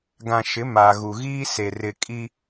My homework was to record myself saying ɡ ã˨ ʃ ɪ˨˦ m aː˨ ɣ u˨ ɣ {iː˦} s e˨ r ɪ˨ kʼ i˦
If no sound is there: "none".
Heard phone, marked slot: iː˦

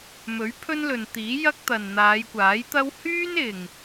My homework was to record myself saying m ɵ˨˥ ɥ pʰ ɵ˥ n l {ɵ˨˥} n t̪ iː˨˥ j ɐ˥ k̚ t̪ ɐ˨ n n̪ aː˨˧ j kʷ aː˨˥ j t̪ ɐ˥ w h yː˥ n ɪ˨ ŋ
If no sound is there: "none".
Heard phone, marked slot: ɵ˨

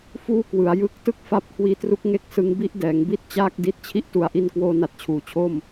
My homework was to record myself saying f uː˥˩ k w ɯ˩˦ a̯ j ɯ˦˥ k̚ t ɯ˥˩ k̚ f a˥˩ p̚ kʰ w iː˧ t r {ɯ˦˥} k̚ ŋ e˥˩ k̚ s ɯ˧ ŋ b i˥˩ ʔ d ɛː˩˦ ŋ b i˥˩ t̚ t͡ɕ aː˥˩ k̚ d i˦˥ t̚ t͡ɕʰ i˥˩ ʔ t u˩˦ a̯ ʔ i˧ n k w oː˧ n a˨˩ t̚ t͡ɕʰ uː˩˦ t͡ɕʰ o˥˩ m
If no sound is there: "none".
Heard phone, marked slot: u˦˥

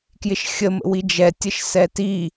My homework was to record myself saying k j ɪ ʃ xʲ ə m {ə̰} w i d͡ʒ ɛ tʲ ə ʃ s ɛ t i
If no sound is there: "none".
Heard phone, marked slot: ə̰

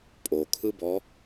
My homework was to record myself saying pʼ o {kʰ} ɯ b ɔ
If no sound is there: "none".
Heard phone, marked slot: kʰ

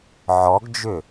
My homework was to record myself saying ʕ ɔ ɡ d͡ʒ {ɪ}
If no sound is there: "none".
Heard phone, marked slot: ʏ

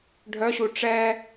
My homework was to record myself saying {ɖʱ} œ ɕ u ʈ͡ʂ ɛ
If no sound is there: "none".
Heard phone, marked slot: ɖʱ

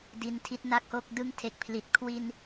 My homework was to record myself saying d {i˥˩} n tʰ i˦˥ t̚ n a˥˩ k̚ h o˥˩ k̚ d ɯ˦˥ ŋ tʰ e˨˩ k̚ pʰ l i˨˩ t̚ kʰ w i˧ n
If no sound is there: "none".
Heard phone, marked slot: i˧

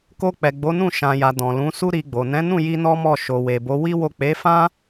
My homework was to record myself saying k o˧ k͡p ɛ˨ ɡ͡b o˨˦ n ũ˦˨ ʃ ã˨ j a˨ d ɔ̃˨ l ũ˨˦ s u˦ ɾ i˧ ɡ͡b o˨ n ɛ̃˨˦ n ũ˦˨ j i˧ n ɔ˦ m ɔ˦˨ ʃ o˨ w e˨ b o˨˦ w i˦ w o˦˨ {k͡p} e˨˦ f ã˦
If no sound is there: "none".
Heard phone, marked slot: k͡p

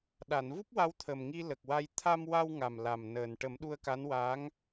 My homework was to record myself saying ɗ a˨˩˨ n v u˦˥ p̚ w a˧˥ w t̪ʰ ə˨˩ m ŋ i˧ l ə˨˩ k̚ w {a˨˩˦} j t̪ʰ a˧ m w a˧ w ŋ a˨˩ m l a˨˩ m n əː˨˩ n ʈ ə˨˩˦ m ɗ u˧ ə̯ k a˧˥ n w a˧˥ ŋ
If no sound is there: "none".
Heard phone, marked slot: a˧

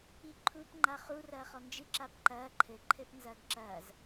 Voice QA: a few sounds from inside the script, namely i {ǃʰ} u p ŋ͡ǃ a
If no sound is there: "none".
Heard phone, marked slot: ǃʰ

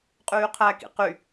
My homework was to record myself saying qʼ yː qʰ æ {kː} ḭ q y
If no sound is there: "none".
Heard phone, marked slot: k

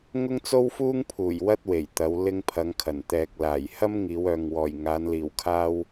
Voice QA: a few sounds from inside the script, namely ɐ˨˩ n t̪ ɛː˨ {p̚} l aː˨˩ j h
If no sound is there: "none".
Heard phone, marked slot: k̚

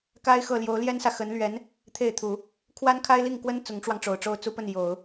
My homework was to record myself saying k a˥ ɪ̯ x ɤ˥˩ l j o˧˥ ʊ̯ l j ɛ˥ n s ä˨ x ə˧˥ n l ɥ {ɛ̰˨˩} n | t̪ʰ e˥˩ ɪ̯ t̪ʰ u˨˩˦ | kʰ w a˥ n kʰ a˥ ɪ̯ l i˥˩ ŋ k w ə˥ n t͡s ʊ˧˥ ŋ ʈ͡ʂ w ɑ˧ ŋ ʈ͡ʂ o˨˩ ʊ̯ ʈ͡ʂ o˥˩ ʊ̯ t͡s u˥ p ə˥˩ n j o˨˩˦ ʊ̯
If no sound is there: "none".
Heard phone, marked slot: ɛ˧˥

